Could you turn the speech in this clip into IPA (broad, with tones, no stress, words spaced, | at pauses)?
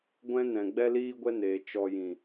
ɡʷɛ̃˦nɛ̃˨ ɡ͡bɛ˦liː˦ɡʷɛ˦neː˨ t͡ʃɔ˧jĩ˨